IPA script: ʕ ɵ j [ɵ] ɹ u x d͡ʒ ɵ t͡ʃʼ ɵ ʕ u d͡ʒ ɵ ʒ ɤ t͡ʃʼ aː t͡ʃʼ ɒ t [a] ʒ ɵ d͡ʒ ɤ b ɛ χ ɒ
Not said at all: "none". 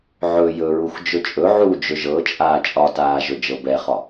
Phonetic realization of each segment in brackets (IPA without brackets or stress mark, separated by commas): ɵ, aː